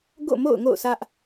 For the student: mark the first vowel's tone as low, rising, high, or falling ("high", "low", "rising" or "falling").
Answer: falling